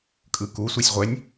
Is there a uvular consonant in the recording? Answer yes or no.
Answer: yes